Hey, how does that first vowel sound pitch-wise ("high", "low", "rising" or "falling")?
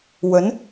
rising